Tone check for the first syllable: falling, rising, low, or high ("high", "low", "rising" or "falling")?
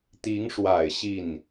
rising